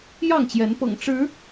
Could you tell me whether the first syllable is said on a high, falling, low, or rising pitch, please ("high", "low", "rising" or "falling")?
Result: falling